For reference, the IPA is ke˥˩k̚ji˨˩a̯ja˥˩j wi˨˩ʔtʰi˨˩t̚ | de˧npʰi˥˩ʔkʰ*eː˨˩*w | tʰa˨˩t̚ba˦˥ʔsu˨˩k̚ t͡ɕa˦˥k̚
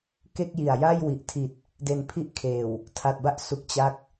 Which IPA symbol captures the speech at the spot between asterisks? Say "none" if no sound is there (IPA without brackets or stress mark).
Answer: eː˨˩